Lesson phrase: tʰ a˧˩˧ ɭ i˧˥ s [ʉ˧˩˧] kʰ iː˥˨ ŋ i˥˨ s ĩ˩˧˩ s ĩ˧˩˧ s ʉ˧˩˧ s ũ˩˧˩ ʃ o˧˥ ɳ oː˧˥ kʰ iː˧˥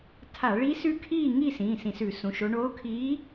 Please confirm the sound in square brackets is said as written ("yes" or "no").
no